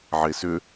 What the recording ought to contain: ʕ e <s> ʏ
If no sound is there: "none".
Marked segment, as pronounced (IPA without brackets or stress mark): s